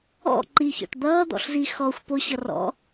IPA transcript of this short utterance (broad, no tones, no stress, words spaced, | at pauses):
ɔ̰ ǃiçɔ̰ʈ d̪ʌːd̪ɔ̰ɬzi xɔxʷpoɕʌ rɔ̰